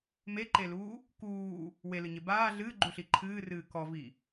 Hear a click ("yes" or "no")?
yes